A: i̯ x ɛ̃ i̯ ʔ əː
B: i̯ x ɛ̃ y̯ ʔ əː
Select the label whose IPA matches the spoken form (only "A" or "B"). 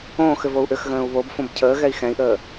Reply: A